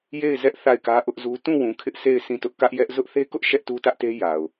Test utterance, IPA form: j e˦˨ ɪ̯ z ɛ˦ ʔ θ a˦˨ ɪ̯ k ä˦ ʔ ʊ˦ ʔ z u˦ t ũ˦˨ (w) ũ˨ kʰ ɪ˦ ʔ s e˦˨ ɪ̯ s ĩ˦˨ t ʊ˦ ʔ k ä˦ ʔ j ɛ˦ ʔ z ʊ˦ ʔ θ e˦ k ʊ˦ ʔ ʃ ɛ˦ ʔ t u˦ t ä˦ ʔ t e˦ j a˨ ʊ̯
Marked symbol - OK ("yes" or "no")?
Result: yes